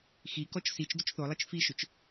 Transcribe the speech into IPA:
xikɔt͡ʃ sit͡ʃ dʏt͡ʃθolˠit͡ʃ fiʃʏt͡ʃ

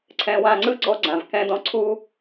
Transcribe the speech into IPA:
ǀʰɛ̃˧wã˧ŋ͡ǀɯ˥ ɡ͡ǀɔ˥ɡ͡ǀã˩v kɛ̃˥dɔ̃˥ ǀʰu˥

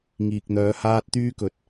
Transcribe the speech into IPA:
ŋiː˨k̚n̪œː˨˧ haː˧t̚t̪yː˧kɵ˨˥t̚

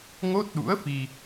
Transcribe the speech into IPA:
ŋo˦˥t̚ɗṵ˧˥ə̯fi˧

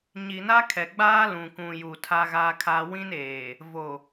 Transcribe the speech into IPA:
ɲi˨na˦kʰɛ˨ ɡ͡baː˦lũ˨kũ˨ju˨ tʰa˦ɣa˦kʰa˦ wĩ˦neː˨ | vo˨

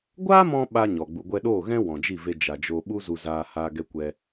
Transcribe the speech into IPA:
ɡʷaː˦mɔ̃˧ ɓa˦ɲɔ˨ ɡ͡bu˨ɡʷɛ˧ɗoː˦˨ ɣɛ̃˦ wɔ̃˨d͡ʒi˦˨ ve˧ d͡ʒa˨d͡ʒo˧ ɓu˦zu˨ zaː˧ha˧ ɡɛ˦kʷɛ˦

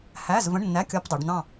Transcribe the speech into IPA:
hæ˧˥˧z və̃˧˥˧ɳnːæ˧˥˧kʲɒ˧˥˧pdˤi˩˧ɖ n̪ɑ̃˦˨

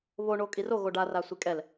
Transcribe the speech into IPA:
βo ɳokʼiro ɣoɖa rasʷikʼɛl

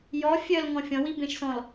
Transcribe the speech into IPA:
jɔ fʲœl ŋɔ̃fʲɔ̃ wibẽʃsɔ̃l

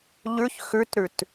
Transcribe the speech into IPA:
ʎʉç xʉtɾʉt

